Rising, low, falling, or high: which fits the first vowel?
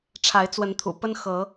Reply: rising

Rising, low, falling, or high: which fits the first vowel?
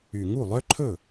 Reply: low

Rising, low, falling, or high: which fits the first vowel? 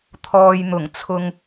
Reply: low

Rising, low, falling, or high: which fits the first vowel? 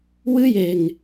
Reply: high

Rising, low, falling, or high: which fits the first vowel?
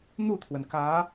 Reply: falling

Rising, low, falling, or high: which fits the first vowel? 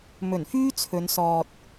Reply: low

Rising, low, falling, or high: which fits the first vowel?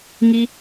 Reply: low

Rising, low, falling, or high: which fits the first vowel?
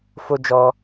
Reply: high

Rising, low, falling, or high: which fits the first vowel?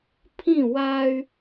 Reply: falling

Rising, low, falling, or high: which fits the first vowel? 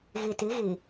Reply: low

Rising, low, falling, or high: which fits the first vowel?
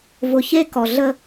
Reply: low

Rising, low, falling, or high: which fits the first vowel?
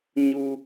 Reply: high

